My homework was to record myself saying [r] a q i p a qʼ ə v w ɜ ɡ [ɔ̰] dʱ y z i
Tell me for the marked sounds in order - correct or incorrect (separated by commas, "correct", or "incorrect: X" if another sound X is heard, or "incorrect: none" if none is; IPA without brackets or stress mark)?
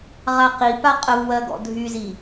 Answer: incorrect: ʁ, correct